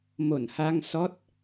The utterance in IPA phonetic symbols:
mo˧˩nha˧ŋ sɔ˦˥t̚

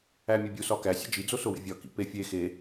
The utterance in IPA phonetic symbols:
æmʲobʲu sɒkæ sʲḛd͡ʒi d͡zosowḛvʲɒ kḭpe fʲe xe

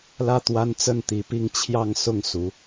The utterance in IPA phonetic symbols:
lä˥˩t̪wa˥n t͡sə˥˩nt̪i˧˥pi˥˧ŋ t͡ɕʰjɑ˥˧ŋsʊ˥˩ŋ su˧˥

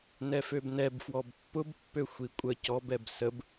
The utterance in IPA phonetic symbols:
nɛføbnɛb fwɔbpːʊb pːøxʷikʷʼə cɔb ɛbsəb

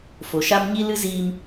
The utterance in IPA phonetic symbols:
fo˨ʃa˦m ɲi˦lɨ˦ziː˧m

